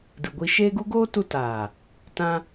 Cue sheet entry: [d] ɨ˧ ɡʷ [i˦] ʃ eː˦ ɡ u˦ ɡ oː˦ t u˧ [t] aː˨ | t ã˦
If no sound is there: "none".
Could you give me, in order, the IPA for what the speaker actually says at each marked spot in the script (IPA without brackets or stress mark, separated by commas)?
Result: d, i˦, t